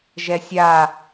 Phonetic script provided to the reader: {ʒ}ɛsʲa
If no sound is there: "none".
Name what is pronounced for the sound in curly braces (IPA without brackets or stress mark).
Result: ʒ